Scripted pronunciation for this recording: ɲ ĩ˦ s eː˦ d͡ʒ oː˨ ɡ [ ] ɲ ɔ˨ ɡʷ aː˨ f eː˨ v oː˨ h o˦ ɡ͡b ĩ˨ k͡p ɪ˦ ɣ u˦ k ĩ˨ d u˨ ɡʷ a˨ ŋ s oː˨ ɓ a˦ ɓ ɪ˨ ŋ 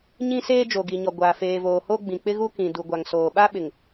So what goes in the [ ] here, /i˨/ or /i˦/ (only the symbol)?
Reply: i˨